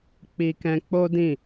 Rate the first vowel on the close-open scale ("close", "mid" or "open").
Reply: close